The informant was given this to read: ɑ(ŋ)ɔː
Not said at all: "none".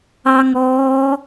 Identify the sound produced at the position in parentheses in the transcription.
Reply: ŋ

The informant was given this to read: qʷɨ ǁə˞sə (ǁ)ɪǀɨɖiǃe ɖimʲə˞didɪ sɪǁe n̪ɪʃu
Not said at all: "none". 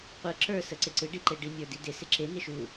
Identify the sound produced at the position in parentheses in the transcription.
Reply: ǀ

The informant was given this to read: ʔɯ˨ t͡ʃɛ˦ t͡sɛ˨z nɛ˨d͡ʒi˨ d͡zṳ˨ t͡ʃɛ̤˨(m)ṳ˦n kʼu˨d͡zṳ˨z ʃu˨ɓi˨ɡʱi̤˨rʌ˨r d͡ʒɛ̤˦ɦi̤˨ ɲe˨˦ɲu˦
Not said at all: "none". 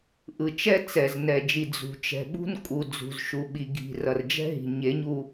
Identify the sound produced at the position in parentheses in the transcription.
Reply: ɓ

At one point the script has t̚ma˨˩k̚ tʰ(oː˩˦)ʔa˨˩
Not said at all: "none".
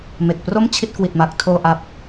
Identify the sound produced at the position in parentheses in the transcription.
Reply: oː˨˩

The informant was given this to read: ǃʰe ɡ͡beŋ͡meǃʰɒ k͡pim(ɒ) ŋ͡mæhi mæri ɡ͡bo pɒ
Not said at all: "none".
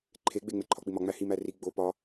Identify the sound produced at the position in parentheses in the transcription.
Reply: ɒ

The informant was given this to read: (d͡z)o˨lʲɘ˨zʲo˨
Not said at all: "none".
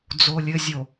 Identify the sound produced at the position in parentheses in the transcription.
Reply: d͡z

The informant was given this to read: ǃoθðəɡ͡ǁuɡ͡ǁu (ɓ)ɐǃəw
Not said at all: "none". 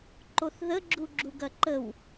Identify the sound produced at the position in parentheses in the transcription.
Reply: ɡ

